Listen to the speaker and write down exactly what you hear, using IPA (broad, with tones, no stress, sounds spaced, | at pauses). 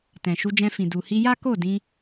t ɛ̃˨ ʃ u˧ d͡ʒ ɛ̃˧ f ĩ˨ d u˨ h i˧ j a˦ k o˦˨ d ĩ˧